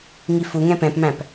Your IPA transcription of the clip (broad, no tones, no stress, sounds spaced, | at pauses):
ŋ i f u ŋ ɛ̃ p ɛ̃ p m æ̃ p